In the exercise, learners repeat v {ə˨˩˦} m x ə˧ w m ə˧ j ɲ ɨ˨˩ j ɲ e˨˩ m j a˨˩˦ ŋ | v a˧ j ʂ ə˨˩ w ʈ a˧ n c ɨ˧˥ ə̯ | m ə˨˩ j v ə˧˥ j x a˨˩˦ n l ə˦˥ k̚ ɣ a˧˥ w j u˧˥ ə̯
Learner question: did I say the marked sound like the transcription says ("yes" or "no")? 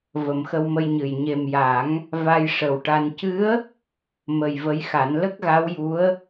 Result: yes